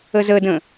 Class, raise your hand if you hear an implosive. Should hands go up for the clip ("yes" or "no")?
no